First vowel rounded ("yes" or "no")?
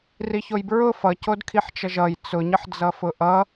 no